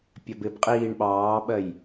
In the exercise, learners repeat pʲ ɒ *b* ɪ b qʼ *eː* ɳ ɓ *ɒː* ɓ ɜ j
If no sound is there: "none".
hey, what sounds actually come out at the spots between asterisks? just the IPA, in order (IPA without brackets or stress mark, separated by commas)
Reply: b, iː, ɑː